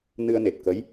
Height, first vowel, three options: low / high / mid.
high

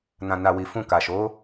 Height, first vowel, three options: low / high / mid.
low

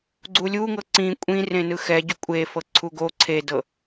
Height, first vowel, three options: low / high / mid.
high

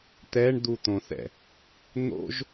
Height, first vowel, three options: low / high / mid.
mid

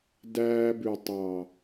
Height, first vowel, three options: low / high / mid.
low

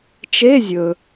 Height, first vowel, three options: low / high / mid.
mid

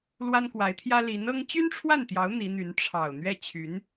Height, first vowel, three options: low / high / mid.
low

